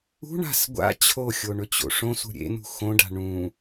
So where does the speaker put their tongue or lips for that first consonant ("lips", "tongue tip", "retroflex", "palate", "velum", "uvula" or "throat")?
retroflex